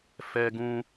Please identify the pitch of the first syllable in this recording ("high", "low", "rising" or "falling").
high